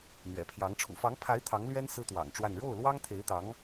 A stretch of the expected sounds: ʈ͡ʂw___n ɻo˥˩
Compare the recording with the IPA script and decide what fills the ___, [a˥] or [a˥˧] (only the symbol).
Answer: a˥˧